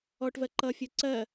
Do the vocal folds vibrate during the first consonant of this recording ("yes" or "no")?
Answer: no